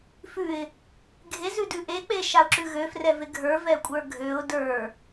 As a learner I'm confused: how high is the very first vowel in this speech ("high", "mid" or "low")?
high